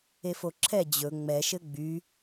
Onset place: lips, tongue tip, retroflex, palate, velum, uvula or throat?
lips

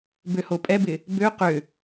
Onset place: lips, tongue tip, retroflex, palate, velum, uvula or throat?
lips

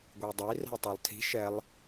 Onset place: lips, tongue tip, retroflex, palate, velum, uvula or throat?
velum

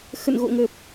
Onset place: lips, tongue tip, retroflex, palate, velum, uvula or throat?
velum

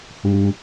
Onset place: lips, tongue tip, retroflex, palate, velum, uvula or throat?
throat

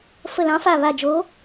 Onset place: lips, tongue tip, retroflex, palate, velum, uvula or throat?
lips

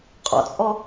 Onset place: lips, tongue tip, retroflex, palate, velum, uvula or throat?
uvula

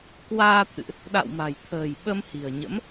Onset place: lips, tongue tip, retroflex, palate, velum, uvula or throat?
velum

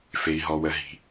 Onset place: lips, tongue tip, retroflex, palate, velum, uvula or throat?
lips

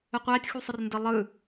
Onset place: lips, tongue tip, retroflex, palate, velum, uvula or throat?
uvula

